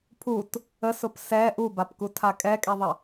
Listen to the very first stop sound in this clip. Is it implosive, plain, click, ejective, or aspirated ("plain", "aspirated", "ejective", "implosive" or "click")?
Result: aspirated